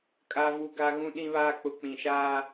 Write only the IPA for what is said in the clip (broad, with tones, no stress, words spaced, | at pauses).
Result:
kʼa˦vu˦ɡa˦ ɣũ˦ɗĩ˦βaː˦ k͡pʊ˨k͡pĩ˨ʃaː˦